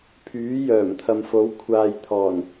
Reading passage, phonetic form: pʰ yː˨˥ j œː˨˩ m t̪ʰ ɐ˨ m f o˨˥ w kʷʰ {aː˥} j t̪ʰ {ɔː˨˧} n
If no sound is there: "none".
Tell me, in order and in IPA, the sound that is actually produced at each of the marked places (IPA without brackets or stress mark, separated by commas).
aː˨, ɔː˨˩